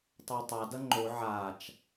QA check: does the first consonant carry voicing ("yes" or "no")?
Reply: no